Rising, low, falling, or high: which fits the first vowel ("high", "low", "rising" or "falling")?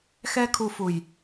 high